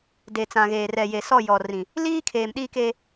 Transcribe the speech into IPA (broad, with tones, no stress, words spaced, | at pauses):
de˨t͡sã˨ɣeː˨ rɛ˨je˨ sɔ˦˨jɔ˨rĩ˨ | liː˦kʰeː˨mɗiː˦ke˦